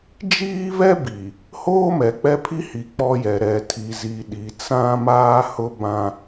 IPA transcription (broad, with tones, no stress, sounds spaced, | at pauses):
d͡ʒ iː˦ v ɛ˦ b i˨ | h oː˦ m ɛ˨ k͡p ɛ˦ pʰ i˦ h i˨ k͡p ɔ˦ j ɛ˨ ɾ ɛ˨ tʰ i˨ z i˨ ɗ i˨ t͡s ã˦ m aː˦ h ʊ˦ b ã˦